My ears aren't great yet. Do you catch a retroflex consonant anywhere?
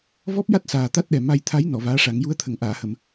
yes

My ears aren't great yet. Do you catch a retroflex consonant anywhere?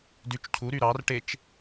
yes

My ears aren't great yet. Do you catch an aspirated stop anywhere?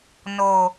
no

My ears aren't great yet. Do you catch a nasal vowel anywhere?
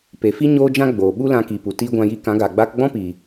yes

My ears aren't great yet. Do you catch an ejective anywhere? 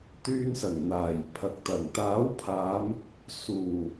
no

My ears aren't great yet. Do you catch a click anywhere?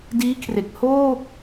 no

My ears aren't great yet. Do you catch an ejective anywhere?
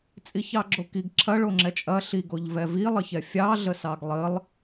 yes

